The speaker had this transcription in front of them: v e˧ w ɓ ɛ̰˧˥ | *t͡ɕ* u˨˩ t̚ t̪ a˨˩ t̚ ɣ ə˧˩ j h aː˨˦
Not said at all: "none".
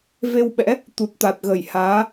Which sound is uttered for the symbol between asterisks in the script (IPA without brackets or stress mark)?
t̪